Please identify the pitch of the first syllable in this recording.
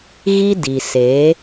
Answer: high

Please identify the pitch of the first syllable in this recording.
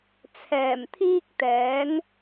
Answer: low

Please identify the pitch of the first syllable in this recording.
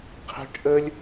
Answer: high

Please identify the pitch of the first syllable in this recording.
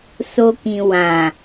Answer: high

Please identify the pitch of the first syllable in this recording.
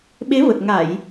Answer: rising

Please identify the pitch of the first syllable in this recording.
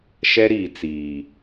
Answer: high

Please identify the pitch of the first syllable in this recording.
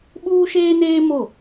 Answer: high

